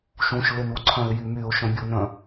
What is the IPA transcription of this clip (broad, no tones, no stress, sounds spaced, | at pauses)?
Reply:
ʃ ũ ʃ l ɪ n u ǀʰ œ̃ ɪ̯ j y m y ʊ̯ ʃ œ̃ bʲ u n œ̃